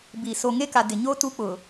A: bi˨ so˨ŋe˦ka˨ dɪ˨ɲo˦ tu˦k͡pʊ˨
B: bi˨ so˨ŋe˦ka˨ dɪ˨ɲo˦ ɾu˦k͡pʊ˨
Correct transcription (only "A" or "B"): A